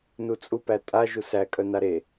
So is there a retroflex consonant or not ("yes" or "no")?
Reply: no